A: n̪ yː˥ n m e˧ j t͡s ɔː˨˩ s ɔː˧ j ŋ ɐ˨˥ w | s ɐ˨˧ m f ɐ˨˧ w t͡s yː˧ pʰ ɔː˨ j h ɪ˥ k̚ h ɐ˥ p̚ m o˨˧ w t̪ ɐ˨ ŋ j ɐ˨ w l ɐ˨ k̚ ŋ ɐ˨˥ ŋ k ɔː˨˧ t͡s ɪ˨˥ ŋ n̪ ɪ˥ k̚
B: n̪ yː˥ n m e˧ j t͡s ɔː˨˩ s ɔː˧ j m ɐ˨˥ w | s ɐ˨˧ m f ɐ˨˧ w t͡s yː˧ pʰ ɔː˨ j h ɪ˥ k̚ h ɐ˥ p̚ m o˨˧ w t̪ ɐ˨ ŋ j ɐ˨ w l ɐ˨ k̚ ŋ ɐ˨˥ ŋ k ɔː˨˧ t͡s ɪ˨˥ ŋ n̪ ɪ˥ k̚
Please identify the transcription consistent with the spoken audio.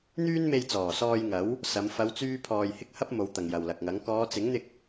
A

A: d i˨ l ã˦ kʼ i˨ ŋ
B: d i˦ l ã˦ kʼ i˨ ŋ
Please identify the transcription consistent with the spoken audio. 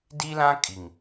B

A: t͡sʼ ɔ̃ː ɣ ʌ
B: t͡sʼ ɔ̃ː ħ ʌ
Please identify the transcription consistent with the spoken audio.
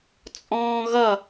A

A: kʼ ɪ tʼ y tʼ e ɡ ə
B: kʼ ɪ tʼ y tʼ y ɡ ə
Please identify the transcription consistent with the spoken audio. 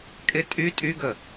B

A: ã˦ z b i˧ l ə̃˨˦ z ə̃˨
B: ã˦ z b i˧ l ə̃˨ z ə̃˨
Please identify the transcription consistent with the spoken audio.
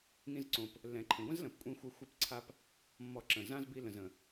B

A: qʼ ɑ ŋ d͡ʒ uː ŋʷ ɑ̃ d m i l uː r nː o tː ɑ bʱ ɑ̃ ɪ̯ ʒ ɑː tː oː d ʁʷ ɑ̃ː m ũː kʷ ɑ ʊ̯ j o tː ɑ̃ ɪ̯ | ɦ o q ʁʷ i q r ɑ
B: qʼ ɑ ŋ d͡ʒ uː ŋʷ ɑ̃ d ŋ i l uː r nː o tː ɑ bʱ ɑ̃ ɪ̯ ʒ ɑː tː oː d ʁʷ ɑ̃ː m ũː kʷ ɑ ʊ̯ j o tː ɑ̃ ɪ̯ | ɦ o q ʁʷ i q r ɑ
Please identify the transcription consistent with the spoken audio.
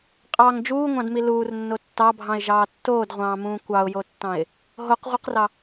A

